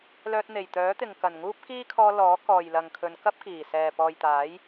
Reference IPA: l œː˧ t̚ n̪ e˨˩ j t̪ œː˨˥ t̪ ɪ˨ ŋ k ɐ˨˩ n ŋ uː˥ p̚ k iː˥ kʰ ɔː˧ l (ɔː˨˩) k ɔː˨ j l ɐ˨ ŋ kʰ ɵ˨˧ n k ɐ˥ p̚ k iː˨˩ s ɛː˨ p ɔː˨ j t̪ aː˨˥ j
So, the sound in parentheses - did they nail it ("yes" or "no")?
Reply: no